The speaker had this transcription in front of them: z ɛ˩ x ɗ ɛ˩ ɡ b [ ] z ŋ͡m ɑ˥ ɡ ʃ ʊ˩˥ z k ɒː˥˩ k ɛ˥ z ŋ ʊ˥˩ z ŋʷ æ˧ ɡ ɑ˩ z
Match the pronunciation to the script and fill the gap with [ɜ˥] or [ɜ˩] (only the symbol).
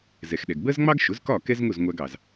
ɜ˥